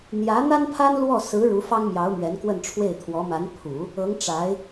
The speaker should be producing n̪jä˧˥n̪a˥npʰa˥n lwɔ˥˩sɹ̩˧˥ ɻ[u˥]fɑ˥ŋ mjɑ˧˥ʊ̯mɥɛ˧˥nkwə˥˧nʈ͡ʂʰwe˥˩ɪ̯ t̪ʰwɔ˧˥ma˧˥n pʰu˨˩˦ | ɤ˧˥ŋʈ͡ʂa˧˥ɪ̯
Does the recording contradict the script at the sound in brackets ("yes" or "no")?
yes